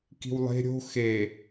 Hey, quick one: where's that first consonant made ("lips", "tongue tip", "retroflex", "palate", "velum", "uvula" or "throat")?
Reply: velum